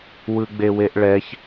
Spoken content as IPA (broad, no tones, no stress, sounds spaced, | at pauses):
w ɯ ɡ͡b e w e ʔ ɭ ɛ ç